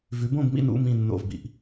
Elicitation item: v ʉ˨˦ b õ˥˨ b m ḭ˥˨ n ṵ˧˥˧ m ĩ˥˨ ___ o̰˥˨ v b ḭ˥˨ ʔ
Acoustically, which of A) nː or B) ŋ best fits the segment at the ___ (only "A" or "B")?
A